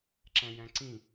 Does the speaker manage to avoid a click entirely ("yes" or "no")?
no